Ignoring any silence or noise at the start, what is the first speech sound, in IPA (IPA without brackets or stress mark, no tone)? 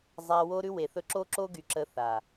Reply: zˤ